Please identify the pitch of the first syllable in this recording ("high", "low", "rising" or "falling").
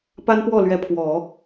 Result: high